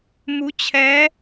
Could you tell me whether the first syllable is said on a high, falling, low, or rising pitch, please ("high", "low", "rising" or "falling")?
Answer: rising